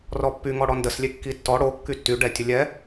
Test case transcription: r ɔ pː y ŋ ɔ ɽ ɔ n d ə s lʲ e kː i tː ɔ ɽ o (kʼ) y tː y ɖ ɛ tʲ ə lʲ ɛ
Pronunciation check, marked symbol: incorrect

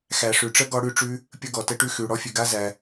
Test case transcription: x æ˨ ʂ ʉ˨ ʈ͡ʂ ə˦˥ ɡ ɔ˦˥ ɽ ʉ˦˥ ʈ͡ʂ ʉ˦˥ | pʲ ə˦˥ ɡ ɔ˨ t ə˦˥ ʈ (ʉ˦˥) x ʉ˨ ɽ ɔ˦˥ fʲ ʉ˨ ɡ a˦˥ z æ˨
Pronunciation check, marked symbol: correct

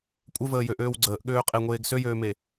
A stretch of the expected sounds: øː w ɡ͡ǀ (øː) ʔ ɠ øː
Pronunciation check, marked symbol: incorrect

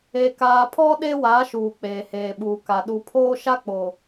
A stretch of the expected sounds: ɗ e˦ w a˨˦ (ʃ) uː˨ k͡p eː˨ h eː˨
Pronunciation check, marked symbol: correct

